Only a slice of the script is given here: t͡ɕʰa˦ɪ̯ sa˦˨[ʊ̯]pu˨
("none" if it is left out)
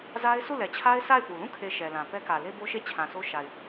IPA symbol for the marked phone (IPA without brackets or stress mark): ɪ̯